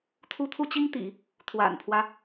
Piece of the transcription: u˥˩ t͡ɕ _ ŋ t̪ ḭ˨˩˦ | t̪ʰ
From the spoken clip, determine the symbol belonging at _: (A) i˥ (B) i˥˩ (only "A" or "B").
A